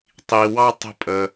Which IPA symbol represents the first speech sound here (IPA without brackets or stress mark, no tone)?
tˤ